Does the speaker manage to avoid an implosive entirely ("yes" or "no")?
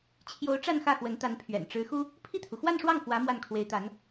yes